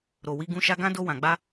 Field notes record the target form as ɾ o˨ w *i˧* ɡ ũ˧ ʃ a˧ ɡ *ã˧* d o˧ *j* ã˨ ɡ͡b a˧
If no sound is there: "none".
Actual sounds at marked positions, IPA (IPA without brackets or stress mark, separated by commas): i˧, ã˦, w